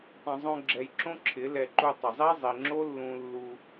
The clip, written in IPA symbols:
tˤĩ˨zˤõ˧ɡ͡ǁɛ˨jǁõ˦ ǁʰɪ˨˦ lɛ˧ ǃu˧tˤɪ˨zˤi˦ zˤi˨ŋ͡ǁo˦lːũ˧lːu˧

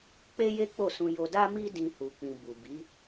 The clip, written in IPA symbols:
k͡pe˦je˦ k͡po˦˨sũ˧ jo˧da˦mi˦ dĩ˦hu˧k͡pĩ˧ bu˨bi˨˦

